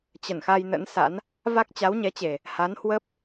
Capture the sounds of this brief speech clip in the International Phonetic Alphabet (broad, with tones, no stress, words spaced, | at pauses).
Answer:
t͡ɕə˧˩nxa˧j nə̰˧˥nsa̰˧˥n | va˦˥k̚t͡ɕa˨˦wɲɛ˨˦t͡ɕe˨˩ | ha˨˦n hwə˦˥p̚